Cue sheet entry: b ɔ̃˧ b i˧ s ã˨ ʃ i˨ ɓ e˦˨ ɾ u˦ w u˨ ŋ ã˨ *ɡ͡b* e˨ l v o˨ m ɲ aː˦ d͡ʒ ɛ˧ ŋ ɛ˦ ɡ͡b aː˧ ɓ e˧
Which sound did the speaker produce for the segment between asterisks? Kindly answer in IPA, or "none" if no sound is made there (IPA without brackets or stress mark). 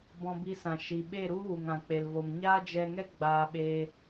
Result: k͡p